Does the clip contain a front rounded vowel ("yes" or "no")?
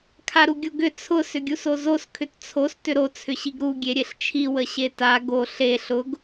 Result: yes